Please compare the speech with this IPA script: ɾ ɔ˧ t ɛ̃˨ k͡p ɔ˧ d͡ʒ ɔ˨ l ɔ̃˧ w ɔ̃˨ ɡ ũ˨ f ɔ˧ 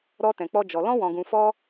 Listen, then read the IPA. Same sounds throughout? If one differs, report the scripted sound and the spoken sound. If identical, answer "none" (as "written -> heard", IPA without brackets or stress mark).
none